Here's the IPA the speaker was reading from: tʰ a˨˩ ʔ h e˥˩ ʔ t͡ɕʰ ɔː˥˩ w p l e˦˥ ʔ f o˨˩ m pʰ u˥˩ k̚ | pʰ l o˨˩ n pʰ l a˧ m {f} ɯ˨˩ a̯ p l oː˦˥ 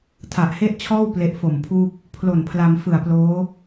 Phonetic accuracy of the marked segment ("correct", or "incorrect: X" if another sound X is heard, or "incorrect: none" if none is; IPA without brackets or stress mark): correct